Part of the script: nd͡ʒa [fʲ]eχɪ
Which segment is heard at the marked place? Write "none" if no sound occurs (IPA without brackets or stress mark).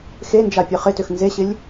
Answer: pʲ